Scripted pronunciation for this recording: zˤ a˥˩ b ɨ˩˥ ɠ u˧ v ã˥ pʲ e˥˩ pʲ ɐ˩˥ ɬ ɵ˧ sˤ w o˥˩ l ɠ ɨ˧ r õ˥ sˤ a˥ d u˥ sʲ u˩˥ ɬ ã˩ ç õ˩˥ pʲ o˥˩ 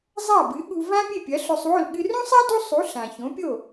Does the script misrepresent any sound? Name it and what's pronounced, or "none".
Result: sʲ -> sˤ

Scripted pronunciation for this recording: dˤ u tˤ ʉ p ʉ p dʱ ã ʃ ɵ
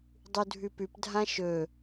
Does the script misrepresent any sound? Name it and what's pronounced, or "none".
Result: tˤ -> dʱ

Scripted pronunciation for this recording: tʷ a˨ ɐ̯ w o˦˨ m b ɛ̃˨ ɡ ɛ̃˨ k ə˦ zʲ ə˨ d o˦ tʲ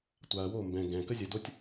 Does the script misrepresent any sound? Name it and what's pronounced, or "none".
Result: none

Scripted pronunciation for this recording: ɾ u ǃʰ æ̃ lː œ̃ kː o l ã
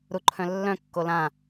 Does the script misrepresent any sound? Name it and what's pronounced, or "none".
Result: æ̃ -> œ̃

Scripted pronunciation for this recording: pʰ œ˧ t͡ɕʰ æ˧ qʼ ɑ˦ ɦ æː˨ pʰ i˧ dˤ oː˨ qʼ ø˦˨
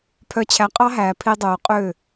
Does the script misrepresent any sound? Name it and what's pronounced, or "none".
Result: none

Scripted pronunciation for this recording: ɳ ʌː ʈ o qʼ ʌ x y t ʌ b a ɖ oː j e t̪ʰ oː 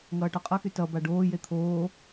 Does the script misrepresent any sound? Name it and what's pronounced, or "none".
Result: ɳ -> ŋ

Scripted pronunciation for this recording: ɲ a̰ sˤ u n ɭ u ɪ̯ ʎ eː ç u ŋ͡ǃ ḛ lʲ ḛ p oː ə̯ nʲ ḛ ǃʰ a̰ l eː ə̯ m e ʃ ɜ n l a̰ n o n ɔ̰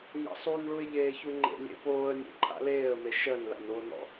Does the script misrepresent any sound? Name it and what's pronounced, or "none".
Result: none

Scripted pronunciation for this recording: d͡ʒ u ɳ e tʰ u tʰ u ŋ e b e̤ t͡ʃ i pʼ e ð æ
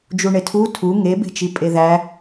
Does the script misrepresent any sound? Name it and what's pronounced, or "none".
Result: none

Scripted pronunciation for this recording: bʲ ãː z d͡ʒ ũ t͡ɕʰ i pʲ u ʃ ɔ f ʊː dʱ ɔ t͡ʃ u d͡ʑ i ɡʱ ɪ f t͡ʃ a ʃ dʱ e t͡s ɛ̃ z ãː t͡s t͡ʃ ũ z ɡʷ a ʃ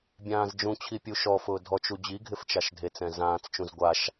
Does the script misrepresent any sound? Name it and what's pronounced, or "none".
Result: none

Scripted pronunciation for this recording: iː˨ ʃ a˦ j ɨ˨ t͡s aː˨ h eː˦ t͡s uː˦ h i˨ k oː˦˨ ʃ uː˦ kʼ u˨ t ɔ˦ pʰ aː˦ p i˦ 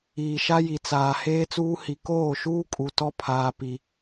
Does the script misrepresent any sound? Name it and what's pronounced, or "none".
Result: ɨ˨ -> i˨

